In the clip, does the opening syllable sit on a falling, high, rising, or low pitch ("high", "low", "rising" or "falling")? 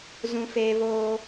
high